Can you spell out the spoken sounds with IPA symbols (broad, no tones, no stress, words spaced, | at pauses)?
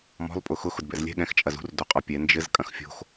mɔ̤lˠ pʼʊxʊx ʊdbɛ̰zlʲɛ̤ ɠɛ̃xt͡ʃʼɐzṳr doqʼɔpʲɛ nd͡ʒɘz kʼɐ̃xfʲo̤x